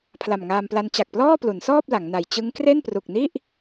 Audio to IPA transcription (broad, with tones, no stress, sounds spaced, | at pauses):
pʰ l a˨˩ m ŋ aː˧ m p l a˦˥ n t͡ɕ a˨˩ k̚ p l ɔː˥˩ p l u˩˦ n s ɔː˥˩ p̚ l a˩˦ ŋ n a˨˩ j t͡ɕ ɯ˦˥ ŋ k r e˥˩ n p r u˨˩ k̚ n i˥˩ ʔ